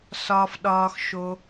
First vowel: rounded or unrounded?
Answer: rounded